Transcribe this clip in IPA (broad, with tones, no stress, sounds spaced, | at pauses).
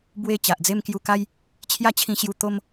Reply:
b w e˥˧ t͡ɕ a˨ ʔ d͡z e˦ m k j u˧ k a˦ j | t͡ɕʰ j a˥˧ t͡ɕʰ ĩ˧ ɕ j u˧ t̪ o˦ m